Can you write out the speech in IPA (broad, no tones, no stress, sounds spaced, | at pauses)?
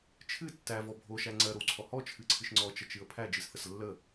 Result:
t͡ʃʰ ɨ tː æ v ɔ bʱ o ʃ æ ŋ͡ǀ ɜ ɾ o w ǀʰ ɔ h ɔ t͡ʃʰ ɨ ǀʰ ɨ ʃ ŋ͡ǀ ɔ t͡ʃ ə t͡ʃ ɨ ə̯ pʰ æ d͡ʒ ɨ s θ ə s lː ə